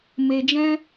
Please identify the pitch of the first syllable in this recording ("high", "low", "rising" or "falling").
low